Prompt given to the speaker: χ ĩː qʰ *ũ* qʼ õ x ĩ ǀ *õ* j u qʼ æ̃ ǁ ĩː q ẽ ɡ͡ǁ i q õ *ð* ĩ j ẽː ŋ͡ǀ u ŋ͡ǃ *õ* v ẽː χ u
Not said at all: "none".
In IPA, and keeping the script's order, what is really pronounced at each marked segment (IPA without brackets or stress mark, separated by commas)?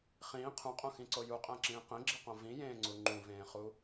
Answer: ũ, o, v, ũ